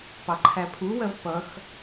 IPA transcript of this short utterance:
p ɑ ǃʰ æ pʰ u w ɜ v p ʌ x

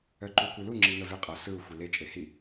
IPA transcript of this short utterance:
œ ǃ u kʷ ɯ l u ŋ͡ǁ i ŋ ə v e qʼ ʌ s ɯ u̯ xʷ i l e t͡ʃʼ e h i

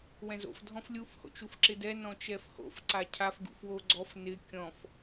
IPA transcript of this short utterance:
w ɛ̃ z o̰ f dʱ ɔ̃ f lʲ u f h o̰ t͡ʃ u f ǁ ɪ d ɛ n ɔ̃ t͡ʃ ɛ f h o̰ f ǀ a cʰ a f ɡ ṵ f w o ɡ͡ǀ ɔ f n ɪ kʲ ɔ̃ f

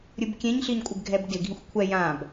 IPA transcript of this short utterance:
ɾʲ ɯ b kʲ ẽ ɲ ɬ i ɲ kʷʼ ɪ b ɡʱ ɛ b d ɪ ɡʱ ĩ xʷ kʷʰ ɛ j ã b

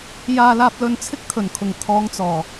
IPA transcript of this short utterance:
j aː˧ l aː˧ p̚ l ɵ˧ n t͡sʰ ɪ˥ k̚ t̪ʰ ɵ˨˩ n kʰ ʊ˨˩ ŋ t̪ʰ ɔː˨˧ ŋ t͡s ɔː˨˩

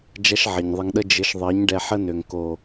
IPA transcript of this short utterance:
d͡ʒ ɐ˦ ʃ ʕ ɘ˨ ɲ ðˤ ə˧ ŋ ɗ ə˦ d͡ʒ ɘ˨˦ ʃ ðˤ ɜ˨˦ ɲ ɖ ɛ˧ ħ ə˦ n ø˨ ŋ k o˨

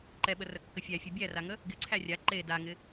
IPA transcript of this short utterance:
ǃ ɛ ɓ ə r ə kː ə fʲ æ fʲ e bʲ æ r a ŋ ə | ɡ ɪ ǀʰ æ rʲ a ǃ e d a ŋ ɪ

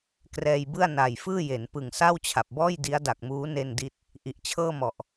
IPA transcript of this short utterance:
k r ɛː˧ j b ɯ˥˩ a̯ n a˨˩ j f ɯː˥˩ j e˩˦ n p ɯ˨˩ ŋ s a˥˩ w t͡ɕʰ a˨˩ p̚ b ɔː˥˩ j d i˦˥ a̯ d a˨˩ k̚ m uː˦˥ n e˥˩ n d i˥˩ t̚ | ʔ i˨˩ ʔ t͡ɕʰ ɤː˥˩ m ɔ˨˩ ʔ

